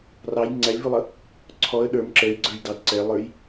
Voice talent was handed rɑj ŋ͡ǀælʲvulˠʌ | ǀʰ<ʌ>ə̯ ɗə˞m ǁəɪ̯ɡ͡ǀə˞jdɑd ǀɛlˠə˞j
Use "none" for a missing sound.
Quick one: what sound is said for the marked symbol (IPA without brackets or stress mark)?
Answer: ɔ